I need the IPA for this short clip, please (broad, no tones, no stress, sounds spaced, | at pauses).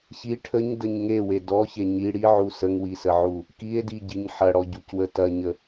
ç i ʈʰ ə ɲ d ə ɲ ŋ e w e d ɔ ç e ɲ i ɽ i ʕ u s ə ŋ w i s ə ʕ u | k i e̯ d i ɟ i ɲ ħ ɐ ɽ ɔ ɟ u c w ə t ɐ ɲ ə